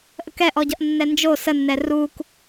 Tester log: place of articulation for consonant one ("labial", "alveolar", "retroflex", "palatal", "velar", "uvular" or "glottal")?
glottal